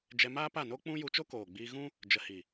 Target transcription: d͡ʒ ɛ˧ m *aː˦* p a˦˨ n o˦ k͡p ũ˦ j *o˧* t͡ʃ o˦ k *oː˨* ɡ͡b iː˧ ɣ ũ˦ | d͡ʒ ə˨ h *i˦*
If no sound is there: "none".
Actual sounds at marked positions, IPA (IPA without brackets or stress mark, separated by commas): aː˦, u˧, oː˨, i˨